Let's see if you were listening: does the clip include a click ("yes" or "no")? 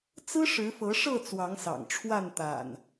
no